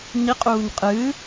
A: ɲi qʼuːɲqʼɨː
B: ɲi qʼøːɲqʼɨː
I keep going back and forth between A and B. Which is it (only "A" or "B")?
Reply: A